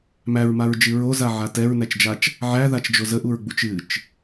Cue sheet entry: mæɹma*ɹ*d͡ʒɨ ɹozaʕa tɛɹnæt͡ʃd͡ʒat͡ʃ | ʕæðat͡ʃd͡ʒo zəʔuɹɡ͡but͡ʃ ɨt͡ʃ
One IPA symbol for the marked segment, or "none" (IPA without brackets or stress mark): ɹ